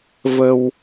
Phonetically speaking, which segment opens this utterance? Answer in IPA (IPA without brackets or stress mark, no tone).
v